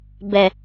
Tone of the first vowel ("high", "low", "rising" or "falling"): low